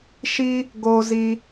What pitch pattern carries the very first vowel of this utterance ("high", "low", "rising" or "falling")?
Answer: high